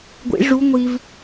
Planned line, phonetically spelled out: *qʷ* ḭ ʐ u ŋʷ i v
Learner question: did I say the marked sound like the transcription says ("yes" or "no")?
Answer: no